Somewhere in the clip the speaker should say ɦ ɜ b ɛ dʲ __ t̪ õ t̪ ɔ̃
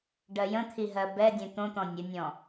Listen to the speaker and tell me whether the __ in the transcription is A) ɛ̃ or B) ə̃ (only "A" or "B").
A